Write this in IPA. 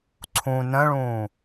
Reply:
ǀʰũ nə̃ɭũː

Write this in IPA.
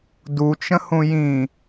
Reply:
dut͡ʃə̃hũ jĩ

